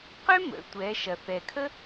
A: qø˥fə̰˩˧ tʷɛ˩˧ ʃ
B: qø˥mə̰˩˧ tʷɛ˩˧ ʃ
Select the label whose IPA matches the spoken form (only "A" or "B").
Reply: B